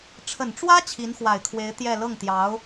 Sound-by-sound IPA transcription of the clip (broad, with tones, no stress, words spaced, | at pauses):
ʈ͡ʂʰə˨˩nʈ͡ʂwä˥ t͡ɕʰi˧˥nxwa˨˩ɪ̯kʰwe˧˥ɪ̯ t̪jɛ˥˧ lɤ˥˩ŋt̪jɑ˧˥ʊ̯